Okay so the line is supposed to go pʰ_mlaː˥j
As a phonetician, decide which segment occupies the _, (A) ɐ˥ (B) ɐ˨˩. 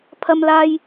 A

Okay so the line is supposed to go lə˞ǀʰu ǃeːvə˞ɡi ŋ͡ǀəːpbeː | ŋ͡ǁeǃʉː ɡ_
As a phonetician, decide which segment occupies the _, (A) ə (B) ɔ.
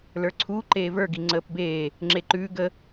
A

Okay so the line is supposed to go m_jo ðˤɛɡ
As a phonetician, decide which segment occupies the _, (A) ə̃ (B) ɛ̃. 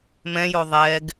B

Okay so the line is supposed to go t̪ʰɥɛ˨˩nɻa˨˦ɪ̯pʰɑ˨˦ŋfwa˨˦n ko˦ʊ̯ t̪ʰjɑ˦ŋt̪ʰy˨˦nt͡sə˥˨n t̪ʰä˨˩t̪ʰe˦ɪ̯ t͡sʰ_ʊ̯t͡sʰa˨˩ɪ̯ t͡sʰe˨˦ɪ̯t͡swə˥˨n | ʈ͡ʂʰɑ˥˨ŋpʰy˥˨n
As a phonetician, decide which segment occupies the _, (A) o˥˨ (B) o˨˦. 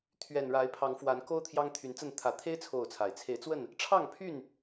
A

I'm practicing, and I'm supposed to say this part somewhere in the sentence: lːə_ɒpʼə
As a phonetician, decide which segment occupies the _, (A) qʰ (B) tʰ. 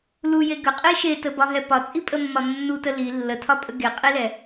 B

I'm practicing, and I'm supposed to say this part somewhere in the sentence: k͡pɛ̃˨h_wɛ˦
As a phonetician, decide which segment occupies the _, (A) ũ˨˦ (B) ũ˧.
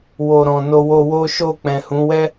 A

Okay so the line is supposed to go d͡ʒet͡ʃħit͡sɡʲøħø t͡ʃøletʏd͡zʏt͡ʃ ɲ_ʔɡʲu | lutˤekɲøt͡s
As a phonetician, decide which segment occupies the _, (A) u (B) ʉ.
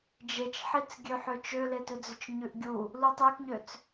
B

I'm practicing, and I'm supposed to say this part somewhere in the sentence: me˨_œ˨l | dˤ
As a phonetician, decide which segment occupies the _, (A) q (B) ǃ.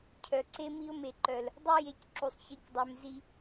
B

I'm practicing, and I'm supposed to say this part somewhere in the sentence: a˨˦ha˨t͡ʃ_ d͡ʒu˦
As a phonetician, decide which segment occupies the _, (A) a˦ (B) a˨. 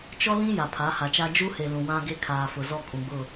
A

